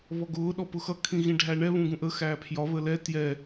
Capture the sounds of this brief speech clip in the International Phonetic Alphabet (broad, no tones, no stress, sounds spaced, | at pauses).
β ɔ ɡ ʊː ɗ ɔ p ʊ x ʌ kʰ ĩ ɣ ĩ ɖʱ æ ɳ ɛ β ũ ɡ ũ ʔ ə x æː pʰ j ɒ β ə l ɛ t j ɛ